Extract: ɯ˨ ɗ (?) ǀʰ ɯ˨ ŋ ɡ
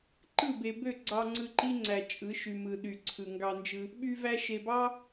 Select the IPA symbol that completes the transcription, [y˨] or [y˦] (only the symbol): y˨